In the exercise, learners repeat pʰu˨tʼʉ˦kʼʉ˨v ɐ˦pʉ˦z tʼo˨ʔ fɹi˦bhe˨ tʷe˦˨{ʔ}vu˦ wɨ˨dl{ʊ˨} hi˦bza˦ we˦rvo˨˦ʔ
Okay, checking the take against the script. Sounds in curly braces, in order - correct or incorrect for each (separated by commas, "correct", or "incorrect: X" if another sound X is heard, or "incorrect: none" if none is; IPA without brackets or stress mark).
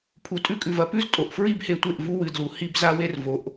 correct, incorrect: u˨